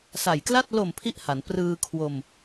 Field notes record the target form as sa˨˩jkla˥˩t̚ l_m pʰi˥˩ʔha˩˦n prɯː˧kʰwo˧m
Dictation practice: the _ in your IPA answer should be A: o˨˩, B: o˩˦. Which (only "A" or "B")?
A